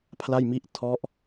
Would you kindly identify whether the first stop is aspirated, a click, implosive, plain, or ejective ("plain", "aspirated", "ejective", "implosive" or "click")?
aspirated